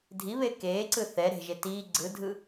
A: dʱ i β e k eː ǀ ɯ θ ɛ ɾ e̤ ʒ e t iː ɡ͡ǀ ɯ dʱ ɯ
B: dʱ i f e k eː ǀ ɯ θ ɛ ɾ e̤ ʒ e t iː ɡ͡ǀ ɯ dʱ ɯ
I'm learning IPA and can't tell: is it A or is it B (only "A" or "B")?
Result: A